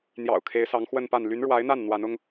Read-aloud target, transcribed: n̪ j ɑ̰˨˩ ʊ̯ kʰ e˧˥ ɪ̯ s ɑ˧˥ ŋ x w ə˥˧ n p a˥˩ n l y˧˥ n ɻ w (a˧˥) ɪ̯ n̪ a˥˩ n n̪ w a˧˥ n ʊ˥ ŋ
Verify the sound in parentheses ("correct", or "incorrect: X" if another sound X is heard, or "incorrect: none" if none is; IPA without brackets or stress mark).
correct